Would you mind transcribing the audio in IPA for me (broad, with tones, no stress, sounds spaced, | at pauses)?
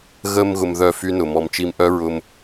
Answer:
ɣ ə˧ m ɣ ʊ˧ m ð œ˦˨ f y˦ n ʊ˨ m ɔ˧ m t͡ʃ i˦ m ʔ œ˦ ɹ ʊ˧ m